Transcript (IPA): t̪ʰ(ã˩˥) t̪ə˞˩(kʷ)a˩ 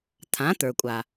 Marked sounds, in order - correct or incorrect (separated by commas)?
correct, incorrect